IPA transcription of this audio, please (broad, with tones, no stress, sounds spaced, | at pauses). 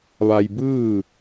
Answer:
ʋ a˧ j b ɯː˥˨